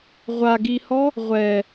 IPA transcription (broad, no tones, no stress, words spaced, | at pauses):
ʁʷaɡihɔ | ʁʷɛ